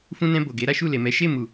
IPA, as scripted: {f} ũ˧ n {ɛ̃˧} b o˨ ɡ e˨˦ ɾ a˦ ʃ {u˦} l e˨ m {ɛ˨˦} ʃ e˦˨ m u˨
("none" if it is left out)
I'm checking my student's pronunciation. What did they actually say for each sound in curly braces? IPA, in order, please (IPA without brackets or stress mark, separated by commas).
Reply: f, ɛ̃˧, u˦˨, ɛ˨˦